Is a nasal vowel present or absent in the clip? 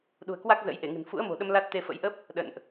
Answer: absent